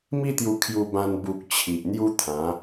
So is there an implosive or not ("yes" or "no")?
no